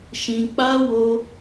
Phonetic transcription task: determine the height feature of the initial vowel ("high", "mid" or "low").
high